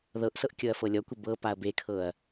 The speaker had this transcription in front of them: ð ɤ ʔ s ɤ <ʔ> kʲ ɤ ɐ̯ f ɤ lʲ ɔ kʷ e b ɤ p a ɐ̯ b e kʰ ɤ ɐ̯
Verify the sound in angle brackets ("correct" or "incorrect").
correct